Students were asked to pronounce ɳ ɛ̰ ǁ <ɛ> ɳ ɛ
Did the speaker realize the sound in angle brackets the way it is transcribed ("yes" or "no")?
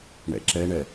yes